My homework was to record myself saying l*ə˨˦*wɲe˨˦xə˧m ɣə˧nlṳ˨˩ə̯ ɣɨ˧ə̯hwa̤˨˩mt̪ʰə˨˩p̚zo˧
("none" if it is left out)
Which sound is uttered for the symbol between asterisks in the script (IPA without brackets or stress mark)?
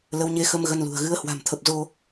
ə˨˦